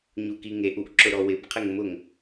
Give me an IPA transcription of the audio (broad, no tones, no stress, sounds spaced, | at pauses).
ɲ u k i ŋ e ʔ u ʔ ǁ ʊ ɾ ɔ w ɪ b qʰ ɪ ŋ m ʊ ŋ